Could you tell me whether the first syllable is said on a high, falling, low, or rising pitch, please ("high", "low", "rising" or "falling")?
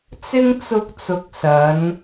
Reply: high